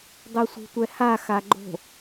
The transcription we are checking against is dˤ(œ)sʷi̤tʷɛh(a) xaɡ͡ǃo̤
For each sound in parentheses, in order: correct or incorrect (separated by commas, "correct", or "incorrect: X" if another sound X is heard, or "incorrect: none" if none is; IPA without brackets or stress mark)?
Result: correct, correct